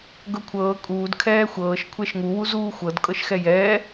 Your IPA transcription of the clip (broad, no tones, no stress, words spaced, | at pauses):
ɡɤkʷʰɤː kʼuːd kʰɛːxʷɤːʃ kʷʰɛʃŋuwuzuː xʷɤd kʼɤʃxɛjɛː